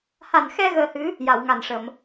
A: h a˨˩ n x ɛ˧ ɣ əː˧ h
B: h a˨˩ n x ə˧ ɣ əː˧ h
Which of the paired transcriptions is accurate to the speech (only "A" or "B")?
A